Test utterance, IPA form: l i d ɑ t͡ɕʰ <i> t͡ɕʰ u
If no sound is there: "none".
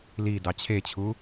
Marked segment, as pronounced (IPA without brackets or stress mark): e